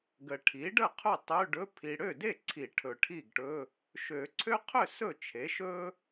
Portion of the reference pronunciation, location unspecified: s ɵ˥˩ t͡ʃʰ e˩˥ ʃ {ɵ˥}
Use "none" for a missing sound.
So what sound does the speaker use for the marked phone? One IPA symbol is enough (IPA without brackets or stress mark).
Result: ɵ˥